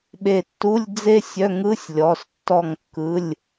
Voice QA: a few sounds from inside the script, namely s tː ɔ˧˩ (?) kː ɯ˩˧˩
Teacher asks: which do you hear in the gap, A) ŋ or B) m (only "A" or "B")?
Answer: A